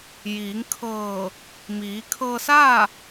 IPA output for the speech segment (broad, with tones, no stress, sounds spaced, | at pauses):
j iː˩˧ ŋ kʰ ɤː˧˩ | m iː˩˧ kʰ ɤː˧ s aː˥˨